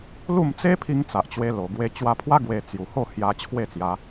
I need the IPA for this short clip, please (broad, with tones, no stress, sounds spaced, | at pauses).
l u˥˧ m t͡s e˦ pʰ i˧ ŋ t͡s a˨ ʔ t͡ɕ w e˧ l o˨˩ ɡ w e˧ t͡ɕ w a˧ pʰ w a˦ ɡ w e˧ t͡s j u˨˩ h o˥˧ h j a˧ t͡ɕʰ w e˥˧ t͡s j a˧